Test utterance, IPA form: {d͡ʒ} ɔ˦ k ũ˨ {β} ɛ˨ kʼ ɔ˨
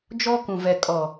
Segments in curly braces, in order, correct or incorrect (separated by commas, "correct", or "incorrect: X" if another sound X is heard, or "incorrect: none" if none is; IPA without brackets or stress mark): correct, incorrect: v